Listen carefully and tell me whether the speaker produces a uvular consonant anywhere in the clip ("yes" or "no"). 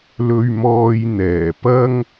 no